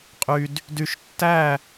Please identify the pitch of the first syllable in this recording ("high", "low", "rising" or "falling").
low